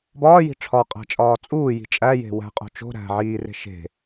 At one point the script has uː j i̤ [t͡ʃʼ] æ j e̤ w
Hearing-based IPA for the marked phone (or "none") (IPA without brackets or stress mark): t͡ʃʼ